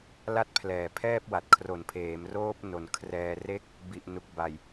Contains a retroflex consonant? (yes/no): no